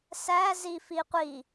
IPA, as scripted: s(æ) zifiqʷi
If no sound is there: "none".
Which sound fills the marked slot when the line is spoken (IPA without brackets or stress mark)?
æ